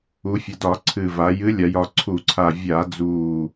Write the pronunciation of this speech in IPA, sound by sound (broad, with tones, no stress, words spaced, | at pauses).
u˩˧fʲə˩˧dɒ˧˩˧ ǀʰɨ˨˩va˩˧ jɨ˨˥lʲa˩˧jɒ˨˩ǀʰu˧˩˧ ǀʰa˨˩ vʲa˧˩˧d͡zu˨˩